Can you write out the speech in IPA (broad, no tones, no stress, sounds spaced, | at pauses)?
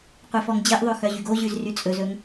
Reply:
qʷ e f ɔ ŋ d͡ʑ e ʔ ðˤ ø x œ ʑ y ɡ o ʑ ʉ z r y t͡sʼ ɵ z ɵ ŋ